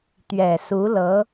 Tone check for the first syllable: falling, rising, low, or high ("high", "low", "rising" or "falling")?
low